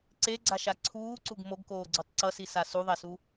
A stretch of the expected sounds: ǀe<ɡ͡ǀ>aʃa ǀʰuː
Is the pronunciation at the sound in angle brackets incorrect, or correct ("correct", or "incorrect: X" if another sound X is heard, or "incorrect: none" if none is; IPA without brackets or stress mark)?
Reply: correct